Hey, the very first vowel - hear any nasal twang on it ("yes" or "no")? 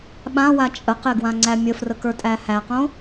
yes